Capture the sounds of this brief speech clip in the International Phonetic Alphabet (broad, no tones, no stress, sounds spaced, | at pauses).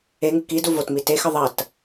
e ŋ ɨ k i d u v o t m i t e x ɨ ðˤ ɐ t